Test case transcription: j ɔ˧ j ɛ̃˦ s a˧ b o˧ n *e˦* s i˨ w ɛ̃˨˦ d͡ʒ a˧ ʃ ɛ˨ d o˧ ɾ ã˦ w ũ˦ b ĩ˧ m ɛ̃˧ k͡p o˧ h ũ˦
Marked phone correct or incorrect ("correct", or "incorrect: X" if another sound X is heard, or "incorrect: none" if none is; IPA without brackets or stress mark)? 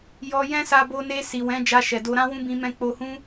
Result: incorrect: e˧